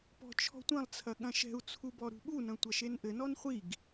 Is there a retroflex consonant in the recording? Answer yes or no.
no